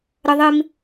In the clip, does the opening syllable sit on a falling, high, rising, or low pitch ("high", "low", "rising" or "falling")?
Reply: high